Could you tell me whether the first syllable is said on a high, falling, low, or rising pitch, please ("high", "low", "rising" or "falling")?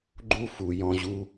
high